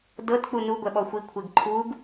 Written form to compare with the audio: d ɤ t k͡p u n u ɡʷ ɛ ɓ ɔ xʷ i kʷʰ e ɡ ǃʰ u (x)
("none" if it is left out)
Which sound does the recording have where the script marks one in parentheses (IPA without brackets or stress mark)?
ɡ